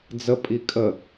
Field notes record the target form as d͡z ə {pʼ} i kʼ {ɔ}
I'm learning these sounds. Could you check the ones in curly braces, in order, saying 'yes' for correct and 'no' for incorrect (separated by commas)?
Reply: yes, no